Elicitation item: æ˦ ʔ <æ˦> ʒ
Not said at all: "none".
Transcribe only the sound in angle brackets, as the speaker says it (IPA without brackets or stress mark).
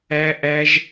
æ˦